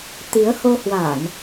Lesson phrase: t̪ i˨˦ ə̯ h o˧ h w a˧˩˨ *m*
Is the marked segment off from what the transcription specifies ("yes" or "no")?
yes